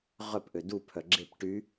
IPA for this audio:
ʁ œ p ʔ ø d u pʰ œ ɡ͡ǁ e p ʈ y

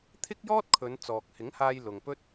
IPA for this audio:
t̪ʰ ɪ˥ k̚ j ɔː˥ t̚ kʰ ɵ˨˧ n t͡s ɔː˨ k̚ h ɪ˨˥ ŋ h aː˧ j l ʊ˨ ŋ p ɵ˥ t̚

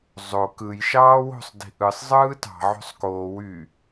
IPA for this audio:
zˤ o k ɯ j ʃ ɑː w o̤ sˤ d i̤ ʔ ɯ sˤ zˤ ɯː t ɑ̤ ʕ o̤ sˤ k oː w y

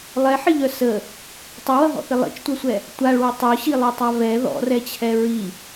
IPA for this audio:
lˠ ɛ ħ ɪ ʎ œ s ə | tˤ ʌ w ʌ ɦ ɔ̰ θ ɪ lˠ ḭ t͡ʃ tʷ œ sʷ ɛ | tʷ a ɭ w u tˤ œ ɕ i lˠ œ tˤ a v ɛ ð ɔ̰ r ɛ t͡ɕʰ ɛ ɹ i

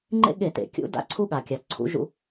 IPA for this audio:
ŋ͡ǃ ḛ˦ ɠ e˧˩˧ t ḛ˩ kʲ ṵ˨˥ d a̰˨˥ ǀʰ u˦ ɠ a˩ kʲ a˩ ǀʰ ṵ˨˥ ʒ ṵ˦

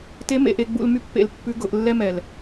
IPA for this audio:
t e˧˥ m ḛ˩˧ ʔ e˧ ɡ͡b ṵ˧ l m y˥ pː ḛ˧ l pː ʉ˧˥ ɡ ʊ˩˧ ʔ lː ɛ˥ m ɛ˩ l

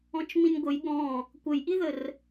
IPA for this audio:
ɔ̃ t͡ʃ m ĩ nʲ ɡʷ ə j ɠ ɔ̃ | kʷ ə j ʔ i ð ə r

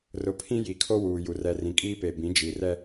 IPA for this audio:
r ʊ˨ pʰ ĩ˦ j i˨ kʰ o˦ w uː˨ j u˨ r ɛ˨ r ĩ˨ kʼ iː˦ p e˨ b ĩ˨˦ d͡ʒ i˨ r ɛ˦

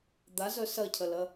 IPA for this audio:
d̪ a z œ s ɐ cʰ ɐ l ɐ

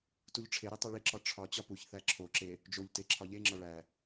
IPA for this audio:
t u ʎ ʈ͡ʂʰ e ɾ i tˤ e ɭ i ǁ ɒ ʈ͡ʂʰ ɒ t͡ɕ ɒ p u ç θ æ ǁʰ o ǁ e | d͡ʒ o ʎ t e ǁʰ ɒ ʎ e ŋ͡ǁ ɒ ɭ æ

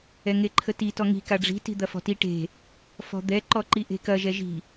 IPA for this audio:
ɛ ŋ e ǃʰ ə t i t ɔ ŋ i̤ k a ɖ͡ʐ i̤ t i̤ d̪ ɐ f ɔ̤ t i ʈ e̤ | f ɔ̤ d̪ ɛ ǃ ɔ ǃ i ʔ e̤ k ɐ ʒ ɛ ʒ i̤

